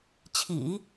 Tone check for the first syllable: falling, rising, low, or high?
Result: low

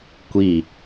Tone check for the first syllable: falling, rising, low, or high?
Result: falling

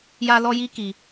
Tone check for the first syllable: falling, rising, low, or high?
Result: high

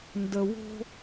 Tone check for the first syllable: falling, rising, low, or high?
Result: low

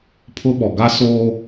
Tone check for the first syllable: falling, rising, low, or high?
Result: high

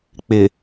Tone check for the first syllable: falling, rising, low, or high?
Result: low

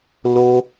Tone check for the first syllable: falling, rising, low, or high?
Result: high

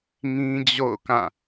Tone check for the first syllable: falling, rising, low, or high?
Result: high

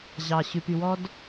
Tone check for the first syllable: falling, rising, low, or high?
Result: low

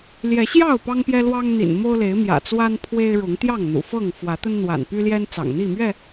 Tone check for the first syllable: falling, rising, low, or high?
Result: rising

